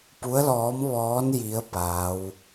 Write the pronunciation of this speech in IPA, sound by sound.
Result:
p u˧˥ ə̯ l ɔː˧˥ m ʋ ɔː˧˥ n j i˧˥ ə̯ p aː˧˥ w

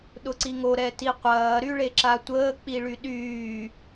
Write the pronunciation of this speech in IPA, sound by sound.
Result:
ɗ ʊ ǀ i ŋ o ɾ ɛ t i qʷ ɐː ɾ y ɭ e ǁ a tʷ əː k͡p i ɭ y ɗ yː

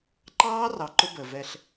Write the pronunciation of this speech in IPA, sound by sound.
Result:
ǃ ɑː˦ r ɑ˨ ǃ ʊ˦ b əː˨ v ɛ˦ ɬ

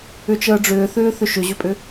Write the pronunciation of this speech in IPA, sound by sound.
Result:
ʏ t͡ʃ əː ɖ͡ʐ ʏː θ ʏː θ ʏ ʃ ʏ ʑ ʏ pʼ ʏ

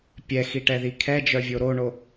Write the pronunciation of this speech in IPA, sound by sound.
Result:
pʲ ɛ x i ʈ ɛ ð i kʰ ɛ d͡ʒ œ vʲ o ɾ o ɳ o

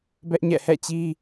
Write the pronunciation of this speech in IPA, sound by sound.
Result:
b ɛ˦ ʔ ɲ ɛ̰˦˨ h ɛ̰˦˨ t͡ɕ i˦

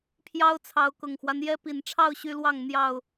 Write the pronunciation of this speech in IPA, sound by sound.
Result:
pʰ j ɑ˦ ʊ̯ t͡sʰ ɑ˨˦ ʊ̯ k ʊ˨˩ ŋ x w a˦ n j ɛ˦ p i˨˩ n ʈ͡ʂʰ ɑ˥˨ ʊ̯ ɕ y˦ l w ɑ˥˨ ŋ n̪ j ɑ˥˨ ʊ̯

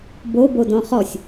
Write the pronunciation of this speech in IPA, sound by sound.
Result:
b o b o d ɔ̃ χ ɔ sʲ

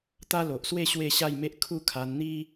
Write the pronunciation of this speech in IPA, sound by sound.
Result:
t̪ a˦ l o˨ ʔ s w e˥˧ ɕ w e˥˧ ɕ a˥˧ j m e˦ ʔ kʰ u˥˧ kʰ a˧ n n̪ i˦

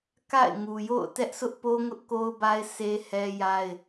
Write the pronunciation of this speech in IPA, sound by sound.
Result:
k a̰˦˨ ɪ̯ ŋ u˨ j o̰˦˨ ʊ̯ t ɛ˦ ʔ sʰ ʊ˦ ʔ p o˦ ŋ ʊ˦ ʔ k o˦ ʊ̯ b a˦ ɪ̯ s e˦ h ɛ˦ j a˦ ɪ̯

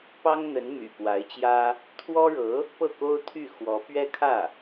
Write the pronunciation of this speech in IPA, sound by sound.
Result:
p ɑ˥ ŋ n̪ ə˧˥ n m y̰˨˩ p w a˧˥ ɪ̯ t͡ɕ j ä˥ | t̪ʰ w ɔ˥ ɻ ɤ˧˥ | p ɤ˥˩ k o˥ ʊ̯ t̪ʰ y˥˩ x w ɔ˧˥ p ɥ ɛ˥ kʰ ä˥˩

